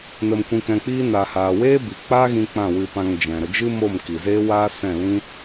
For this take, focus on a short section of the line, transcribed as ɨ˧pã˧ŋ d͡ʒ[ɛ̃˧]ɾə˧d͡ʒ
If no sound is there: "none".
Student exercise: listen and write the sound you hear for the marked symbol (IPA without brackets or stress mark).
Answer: ɛ̃˨